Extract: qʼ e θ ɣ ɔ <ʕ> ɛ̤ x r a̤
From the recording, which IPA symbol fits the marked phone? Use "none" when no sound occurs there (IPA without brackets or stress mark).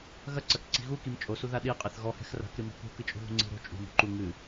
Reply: h